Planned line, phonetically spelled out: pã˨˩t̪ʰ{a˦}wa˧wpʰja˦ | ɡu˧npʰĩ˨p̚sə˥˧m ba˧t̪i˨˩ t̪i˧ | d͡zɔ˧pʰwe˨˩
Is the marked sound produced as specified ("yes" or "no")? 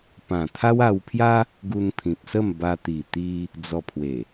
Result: yes